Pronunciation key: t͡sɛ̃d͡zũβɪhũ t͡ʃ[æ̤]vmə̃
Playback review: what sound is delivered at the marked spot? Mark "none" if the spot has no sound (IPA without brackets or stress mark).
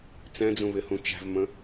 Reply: æ̤